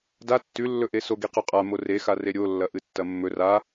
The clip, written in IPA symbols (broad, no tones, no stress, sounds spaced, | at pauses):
d a tː ʉ lː ɵ ʔ e s o ɡ i q ʉ qʼ a m o r e x a r e ɾʲ o lː ɐ ʔ ɨ tː ɐ mː ɵ r a